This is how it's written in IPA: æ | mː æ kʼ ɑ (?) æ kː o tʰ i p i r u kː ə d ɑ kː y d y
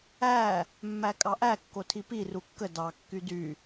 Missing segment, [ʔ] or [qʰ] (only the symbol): ʔ